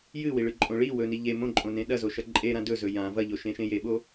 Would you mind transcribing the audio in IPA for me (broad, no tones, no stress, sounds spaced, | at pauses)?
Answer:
j ɨ w i ɭ ɨ ǃʼ õ ɭ i w ɵ n i ʎ e m õ ǃʼ õ n ẽ ɗ ɐ z o ʃ ɐ ǃʼ e ɾ ã d ɵ z ɵ j ã v ɐ ʎ o ʃ ẽ ʃ ẽ j e ɓ o